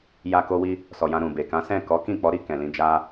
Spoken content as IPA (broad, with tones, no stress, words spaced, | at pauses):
ja˧ ko˧wi˧ | sɔ˨jã˧ɾũ˨ be˨kã˨˦ sɛ̃˦˨ kɔ˨˦kĩ˦˨k͡pɔ˨˦ ɾi˦˨ kɛ̃˨lĩ˧ d͡ʒa˧